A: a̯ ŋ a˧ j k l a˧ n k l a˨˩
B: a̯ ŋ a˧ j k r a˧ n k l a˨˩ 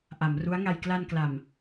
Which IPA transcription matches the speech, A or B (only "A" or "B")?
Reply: A